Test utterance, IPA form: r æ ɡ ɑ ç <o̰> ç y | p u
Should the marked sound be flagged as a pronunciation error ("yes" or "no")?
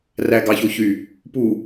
yes